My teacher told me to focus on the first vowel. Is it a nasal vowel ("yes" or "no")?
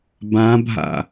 yes